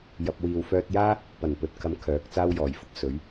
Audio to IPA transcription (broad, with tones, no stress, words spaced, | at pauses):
jɐ˧p̚ wiː˨wfœː˧t̚ jaː˥ | pɐ˨˩npɵ˨t̚kʰɐ˨˧m kʰœː˨˥k̚t͡saː˥w jɔː˨˩jfʊ˧k̚ sɵ˨˥ɥ